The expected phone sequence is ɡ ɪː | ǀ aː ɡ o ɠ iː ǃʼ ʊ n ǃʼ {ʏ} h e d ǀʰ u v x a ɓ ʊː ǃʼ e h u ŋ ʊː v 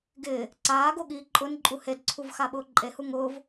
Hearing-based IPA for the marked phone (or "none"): u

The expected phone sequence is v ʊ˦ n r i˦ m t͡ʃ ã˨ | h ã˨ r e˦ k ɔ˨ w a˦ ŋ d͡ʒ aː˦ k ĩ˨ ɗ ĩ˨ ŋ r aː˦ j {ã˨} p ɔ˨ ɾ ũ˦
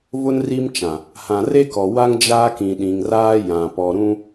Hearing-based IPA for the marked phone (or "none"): ã˨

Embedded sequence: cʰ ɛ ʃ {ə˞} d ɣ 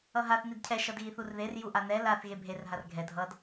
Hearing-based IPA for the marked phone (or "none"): ʌ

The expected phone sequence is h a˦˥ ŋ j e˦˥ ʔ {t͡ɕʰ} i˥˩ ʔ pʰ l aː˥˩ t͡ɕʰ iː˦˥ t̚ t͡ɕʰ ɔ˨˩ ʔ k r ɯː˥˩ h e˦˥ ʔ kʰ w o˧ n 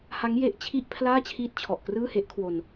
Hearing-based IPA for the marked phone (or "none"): t͡ɕʰ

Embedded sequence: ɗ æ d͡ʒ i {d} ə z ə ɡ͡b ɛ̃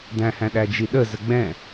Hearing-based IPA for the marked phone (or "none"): ɗ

